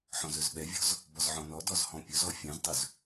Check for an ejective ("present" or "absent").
absent